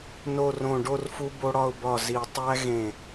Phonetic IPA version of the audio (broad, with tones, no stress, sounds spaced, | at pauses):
n o˧˩ r õ˧˩ ɖ o˥˨ r f u˦ b o˦ ɽ ɒ˦ ʊ̯ b ɒ˧˩ z i˨˩˦ tˤ æ˦ ɣ ẽ˧˩